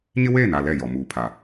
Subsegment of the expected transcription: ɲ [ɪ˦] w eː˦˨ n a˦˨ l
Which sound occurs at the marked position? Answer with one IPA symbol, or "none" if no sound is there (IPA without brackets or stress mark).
ɪ˦